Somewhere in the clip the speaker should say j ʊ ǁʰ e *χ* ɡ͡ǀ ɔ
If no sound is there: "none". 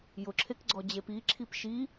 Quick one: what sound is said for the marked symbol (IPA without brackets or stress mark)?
k